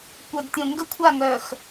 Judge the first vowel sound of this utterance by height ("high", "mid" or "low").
mid